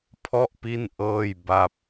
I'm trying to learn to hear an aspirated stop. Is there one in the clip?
yes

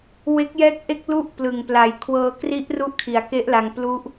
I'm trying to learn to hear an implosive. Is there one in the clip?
no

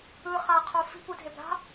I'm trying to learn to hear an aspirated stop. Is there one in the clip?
yes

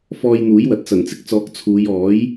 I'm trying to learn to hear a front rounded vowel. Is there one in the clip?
no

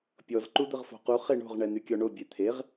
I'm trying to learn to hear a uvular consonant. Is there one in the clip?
yes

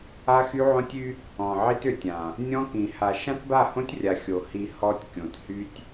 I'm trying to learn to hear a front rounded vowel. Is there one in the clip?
yes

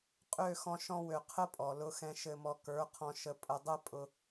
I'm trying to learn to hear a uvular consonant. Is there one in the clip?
yes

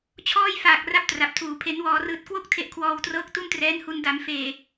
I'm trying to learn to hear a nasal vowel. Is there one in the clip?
no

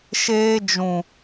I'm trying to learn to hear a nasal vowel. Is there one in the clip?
yes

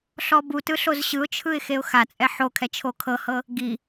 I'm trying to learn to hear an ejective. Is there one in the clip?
yes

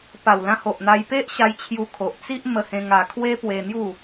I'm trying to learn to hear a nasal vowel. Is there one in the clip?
yes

